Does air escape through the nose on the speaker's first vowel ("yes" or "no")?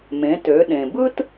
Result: yes